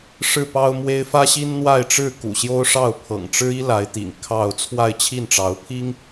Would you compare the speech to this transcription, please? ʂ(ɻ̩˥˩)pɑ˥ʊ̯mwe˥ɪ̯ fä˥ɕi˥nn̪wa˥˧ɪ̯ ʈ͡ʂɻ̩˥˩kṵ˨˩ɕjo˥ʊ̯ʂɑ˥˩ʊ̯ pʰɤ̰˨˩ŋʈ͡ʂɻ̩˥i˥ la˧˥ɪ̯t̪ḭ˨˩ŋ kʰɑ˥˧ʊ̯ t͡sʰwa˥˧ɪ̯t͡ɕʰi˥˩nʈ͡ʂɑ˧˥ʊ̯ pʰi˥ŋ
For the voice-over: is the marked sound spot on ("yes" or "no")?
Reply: yes